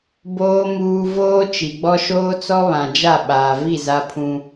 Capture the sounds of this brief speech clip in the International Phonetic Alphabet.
b oː˨ m uː˨ v oː˦ t͡ʃ i˨ ɡ͡b ɔ˦ ʃ oː˦ t͡s ɔ˦ β ã˨ d͡ʒ a˦˨ ɓ aː˨ v i˦˨ z a˦ pʰ ũ˦

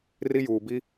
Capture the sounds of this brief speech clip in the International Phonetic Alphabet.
r i˦ j uː˨ b i˦

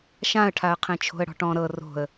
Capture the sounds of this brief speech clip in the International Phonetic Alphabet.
ʃ ã ə̯ ʈʰ a ə̯ qʰ ẽ t͡ʃʰ o̤ ə̯ ɽ ɔ̤ ʈ ɔ̃ ɾ ɤ r o̤ ə̯

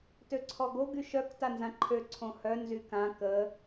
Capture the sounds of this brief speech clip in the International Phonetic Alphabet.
t ø ǀʰ ɔ ɡ o ɡ y ʃ œ k t a n z ã ǃʰ ø ǀʰ õ h œ n z y k ã k ə

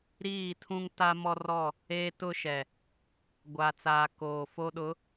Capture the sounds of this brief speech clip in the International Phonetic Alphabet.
ɾ iː˦˨ tʰ ũ˦ ŋ t a˦ m ɔ˦ r ɔ˦˨ | eː˦ t ʊ˦ ʃ ɛ˨ | ɡʷ aː˨ t͡s aː˨ k oː˨ f o˦ ɗ ʊ˨˦

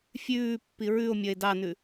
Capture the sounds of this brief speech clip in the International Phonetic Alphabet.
fʲ ʉː pː i ɹ ʉ o̯ mʲ ɐ e̯ d ɑ n ʉ

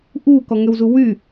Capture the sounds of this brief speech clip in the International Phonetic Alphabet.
ʔ uː k ɔ ŋ ø w z u w y

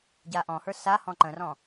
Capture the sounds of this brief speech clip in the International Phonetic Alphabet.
ɟ a ʔ ɔ̃ h ə˞ s a h ɔ̃ ǃ ə̃ r ɔ̃

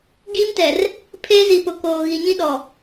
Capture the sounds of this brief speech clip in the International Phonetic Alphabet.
ɡ iː˦ m t ɛ˨ r | pʰ eː˦ z i˨ p ʊ˨ k oː˨ ɣ i˨ ɲ ĩ˦ ɗ ɔ˨

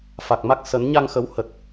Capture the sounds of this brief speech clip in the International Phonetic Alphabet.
f a˨˩ k̚ m a˦˥ k̚ s ə˨˦ n ɲ a˧ ŋ x ə˨˦ w h ə˨˩ t̚

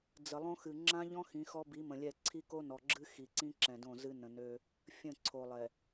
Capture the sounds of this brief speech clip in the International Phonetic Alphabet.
d͡z ə˨ lˠ õ˦ x ɨ˨ ŋ͡ǁ ã˦ ʎ ɔ̃˦ x ĩ˨˦ x ɔ˦ b i˨˦ m ə̃˨ lʲ ɛ˦˨ ǀʰ i˦ k o˦ n ɔ˨ ɡ͡ǁ ɨ˦ x i˨ ǀ ĩ˦ ǁ ɛ̃˨ d õ˦˨ z ɨ˦ n ə̃˨ n ø˦ | fʲ ə̃˦˨ ǀʰ o˨ lˠ ɛ˨

